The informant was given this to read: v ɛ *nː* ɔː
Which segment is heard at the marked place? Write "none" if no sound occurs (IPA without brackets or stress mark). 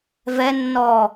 nː